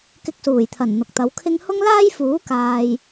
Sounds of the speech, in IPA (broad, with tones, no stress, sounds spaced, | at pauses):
k ɪ˧ k̚ s uː˨˩ j t̪ʰ ɐ˨˩ n n̪ ʊ˨ k̚ t̪ ɐ˨˧ w kʰ ɪ˥ ŋ h ʊ˥ ŋ l aː˥ j f uː˨˥ k aː˧ j